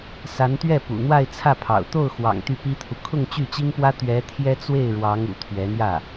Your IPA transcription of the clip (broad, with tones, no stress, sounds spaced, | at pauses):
s a˧˥ n t̪ ɥ ɛ˥˩ p ṵ˨˩ n̪ w a˥˧ ɪ̯ t͡sʰ ä˥˩ pʰ ɑ̰˨˩ ʊ̯ t̪ o˥˩ ʊ̯ x w ɑ̰˨˩ ŋ t̪ y˥˩ p i˥ t̪ʰ u˨ kʰ ʊ˥˧ ŋ t͡ɕ y˥˩ t͡ɕ i˥ ŋ p w ä˥ t̪ ɥ ɛ˧˥ t̪ʰ j ɛ˥ t͡s w e˥˩ ɪ̯ ɻ w ɑ˧˥ ŋ ṵ˨˩ t̪ʰ ɥ ɛ˧˥ n̪ j ä˥˩